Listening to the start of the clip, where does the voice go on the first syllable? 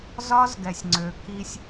high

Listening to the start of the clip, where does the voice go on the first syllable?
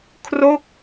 falling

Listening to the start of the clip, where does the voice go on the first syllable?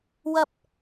low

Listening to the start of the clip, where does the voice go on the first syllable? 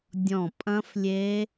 falling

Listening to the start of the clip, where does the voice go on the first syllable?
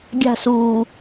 falling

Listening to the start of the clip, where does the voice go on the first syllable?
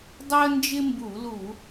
high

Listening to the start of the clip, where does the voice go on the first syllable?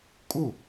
falling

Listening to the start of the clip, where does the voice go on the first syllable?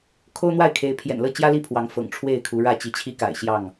high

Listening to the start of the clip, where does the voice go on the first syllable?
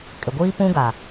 low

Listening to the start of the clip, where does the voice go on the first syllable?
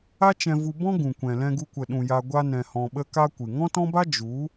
high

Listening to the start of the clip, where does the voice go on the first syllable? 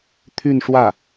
falling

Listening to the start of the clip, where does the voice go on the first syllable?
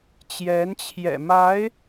rising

